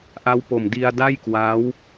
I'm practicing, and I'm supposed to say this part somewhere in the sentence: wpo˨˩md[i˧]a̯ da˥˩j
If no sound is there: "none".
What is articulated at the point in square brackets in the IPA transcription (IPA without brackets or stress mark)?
i˧